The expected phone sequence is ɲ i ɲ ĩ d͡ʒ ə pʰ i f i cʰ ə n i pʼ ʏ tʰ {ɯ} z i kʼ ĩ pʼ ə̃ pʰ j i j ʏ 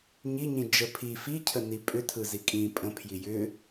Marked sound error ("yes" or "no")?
no